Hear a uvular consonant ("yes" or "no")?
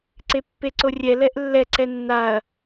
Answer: no